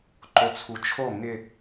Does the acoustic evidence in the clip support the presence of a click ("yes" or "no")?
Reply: yes